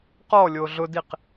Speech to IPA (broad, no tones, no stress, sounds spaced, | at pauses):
q ɔ lʲ o ɮ ʊ d i q